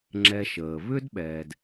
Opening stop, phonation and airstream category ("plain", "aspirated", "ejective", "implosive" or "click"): click